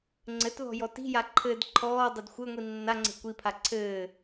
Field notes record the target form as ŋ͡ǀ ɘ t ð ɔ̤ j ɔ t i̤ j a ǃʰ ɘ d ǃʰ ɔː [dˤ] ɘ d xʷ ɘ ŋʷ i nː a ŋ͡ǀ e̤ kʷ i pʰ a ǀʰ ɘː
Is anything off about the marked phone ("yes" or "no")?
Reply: no